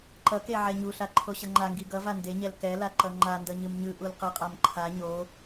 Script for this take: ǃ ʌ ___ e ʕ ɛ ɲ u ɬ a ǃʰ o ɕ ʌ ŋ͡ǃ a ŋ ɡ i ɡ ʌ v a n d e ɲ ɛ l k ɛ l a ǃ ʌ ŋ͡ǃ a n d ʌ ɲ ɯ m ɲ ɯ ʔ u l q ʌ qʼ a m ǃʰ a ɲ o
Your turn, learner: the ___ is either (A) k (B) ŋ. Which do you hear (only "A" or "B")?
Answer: A